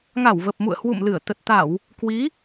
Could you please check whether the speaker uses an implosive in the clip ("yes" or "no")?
no